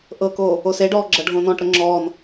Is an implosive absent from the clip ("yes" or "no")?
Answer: yes